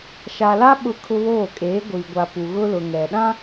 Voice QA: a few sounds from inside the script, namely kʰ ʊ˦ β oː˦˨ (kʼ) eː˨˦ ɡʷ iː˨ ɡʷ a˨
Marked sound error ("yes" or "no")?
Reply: no